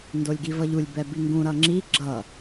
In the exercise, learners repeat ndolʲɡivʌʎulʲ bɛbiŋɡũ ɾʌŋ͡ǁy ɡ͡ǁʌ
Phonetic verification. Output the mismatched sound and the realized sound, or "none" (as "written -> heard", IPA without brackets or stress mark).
y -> i